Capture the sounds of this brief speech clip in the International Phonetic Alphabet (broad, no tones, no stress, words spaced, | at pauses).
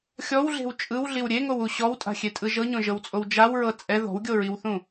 xʲɔwɮe̤w t͡ʃʼɯwɮiw ɾʲeŋowu ɕɔwtʼa̤xʲetʼɯ ʒɤɲõʒɤwt͡sʼow d͡ʒawɹɤ t͡sʼɛ ðɔ̤wɡʲoɹiwθũ